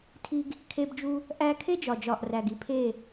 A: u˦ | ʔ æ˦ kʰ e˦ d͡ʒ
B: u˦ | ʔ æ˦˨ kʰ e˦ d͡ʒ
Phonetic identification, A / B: A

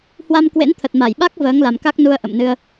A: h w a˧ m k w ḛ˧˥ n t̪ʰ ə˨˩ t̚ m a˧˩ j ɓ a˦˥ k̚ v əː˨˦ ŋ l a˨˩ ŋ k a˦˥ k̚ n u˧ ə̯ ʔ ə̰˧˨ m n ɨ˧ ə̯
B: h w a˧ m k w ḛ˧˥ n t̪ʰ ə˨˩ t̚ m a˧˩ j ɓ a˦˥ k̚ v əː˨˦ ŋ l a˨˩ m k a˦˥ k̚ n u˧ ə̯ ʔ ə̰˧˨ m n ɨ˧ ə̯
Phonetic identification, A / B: B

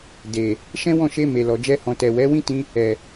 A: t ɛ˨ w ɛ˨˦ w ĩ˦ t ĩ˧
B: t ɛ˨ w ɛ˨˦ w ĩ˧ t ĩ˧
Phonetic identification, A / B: A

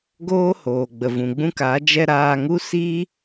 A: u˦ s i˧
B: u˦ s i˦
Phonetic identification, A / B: B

